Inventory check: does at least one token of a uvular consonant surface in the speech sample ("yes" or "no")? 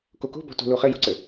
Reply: yes